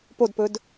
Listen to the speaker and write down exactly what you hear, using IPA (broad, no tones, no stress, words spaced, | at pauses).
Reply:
podpɵd